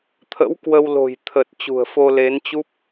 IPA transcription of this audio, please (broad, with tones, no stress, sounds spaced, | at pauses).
t̪ʰ ə̰˧˥ w k w ə˧ w l o̤˨˩ j t̪ʰ ə˨˩ t̚ t͡ɕ ṳ˨˩ ə̯ f o˧ l e˨˦ n t͡ɕ u˦˥ p̚